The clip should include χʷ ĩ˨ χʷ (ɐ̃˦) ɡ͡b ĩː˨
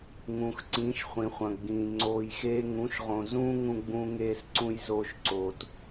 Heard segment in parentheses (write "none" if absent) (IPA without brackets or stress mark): ɐ̃˨